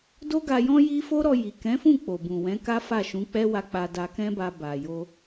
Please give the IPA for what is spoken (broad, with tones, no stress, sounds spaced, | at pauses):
d o˦ ɡ a˧ j ɔ̃˦ j i˦ f o˦ ɾ ɔ˧ j i˨ k ɛ̃˨˦ f ũ˦˨ k͡p o˨ b ũ˨ w ɛ̃˨˦ k a˦ f a˦˨ ʃ ũ˨˦ k͡p ɛ˦ w a˧ k͡p a˧ d a˧ k ɛ̃˦ b a˧ b a˨ j o˧